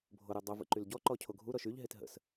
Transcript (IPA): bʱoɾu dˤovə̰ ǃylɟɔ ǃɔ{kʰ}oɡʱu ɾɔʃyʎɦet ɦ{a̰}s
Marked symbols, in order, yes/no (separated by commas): no, no